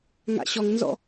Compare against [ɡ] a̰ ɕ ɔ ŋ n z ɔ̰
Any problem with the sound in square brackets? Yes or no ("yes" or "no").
yes